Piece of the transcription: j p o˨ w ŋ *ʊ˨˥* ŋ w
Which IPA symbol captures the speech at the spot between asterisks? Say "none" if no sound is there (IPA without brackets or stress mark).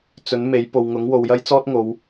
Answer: ʊ˨˥